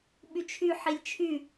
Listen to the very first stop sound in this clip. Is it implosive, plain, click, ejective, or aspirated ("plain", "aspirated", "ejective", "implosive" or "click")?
implosive